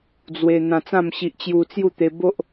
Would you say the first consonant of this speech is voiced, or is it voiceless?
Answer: voiced